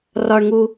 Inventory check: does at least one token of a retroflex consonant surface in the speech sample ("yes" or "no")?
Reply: yes